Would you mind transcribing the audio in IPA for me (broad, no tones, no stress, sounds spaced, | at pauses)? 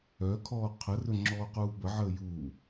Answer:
œ kʰ ɔː qʰ ə r ɵ ŋ͡ǁ ɔː q uː b ə ʕ əː j uː